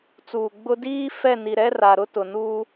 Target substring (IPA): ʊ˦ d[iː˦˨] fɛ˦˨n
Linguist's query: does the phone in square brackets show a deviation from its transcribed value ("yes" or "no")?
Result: yes